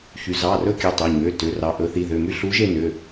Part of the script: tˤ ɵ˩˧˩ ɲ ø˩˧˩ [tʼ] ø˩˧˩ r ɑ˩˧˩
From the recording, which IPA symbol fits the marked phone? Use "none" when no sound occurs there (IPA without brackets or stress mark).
t